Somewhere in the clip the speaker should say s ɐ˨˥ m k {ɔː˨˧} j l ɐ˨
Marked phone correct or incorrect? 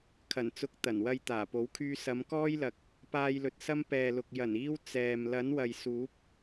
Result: incorrect